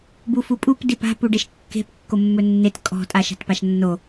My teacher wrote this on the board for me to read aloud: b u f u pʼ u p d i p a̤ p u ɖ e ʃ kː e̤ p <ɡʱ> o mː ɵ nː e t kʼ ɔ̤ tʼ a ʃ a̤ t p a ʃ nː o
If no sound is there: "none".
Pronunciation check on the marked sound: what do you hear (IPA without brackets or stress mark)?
kː